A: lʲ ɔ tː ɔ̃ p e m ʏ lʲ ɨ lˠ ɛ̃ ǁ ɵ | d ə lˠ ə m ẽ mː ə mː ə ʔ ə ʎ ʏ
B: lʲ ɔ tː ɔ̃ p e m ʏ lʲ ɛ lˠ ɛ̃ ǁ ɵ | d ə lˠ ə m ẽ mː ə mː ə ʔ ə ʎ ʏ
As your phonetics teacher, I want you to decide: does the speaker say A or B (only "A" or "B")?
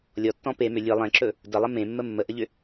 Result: A